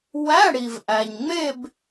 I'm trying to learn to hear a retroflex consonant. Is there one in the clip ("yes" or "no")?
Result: yes